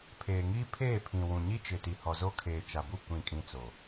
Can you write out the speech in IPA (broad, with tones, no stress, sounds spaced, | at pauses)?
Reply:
pʰ eː˨ ŋ iː˦ pʰ eː˦˨ pʰ ĩ˨ w ũ˨ ɲ i˦ t͡ʃ ɪ˨ t i˨ h ɔ˨ z o˦ kʰ eː˨ t͡ʃ a˨ b u˦˨ kʷ ĩ˦˨ kʼ ĩ˦ t͡s o˨